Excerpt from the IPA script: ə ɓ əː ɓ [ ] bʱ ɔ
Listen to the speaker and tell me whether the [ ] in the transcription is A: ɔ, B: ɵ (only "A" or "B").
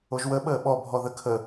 A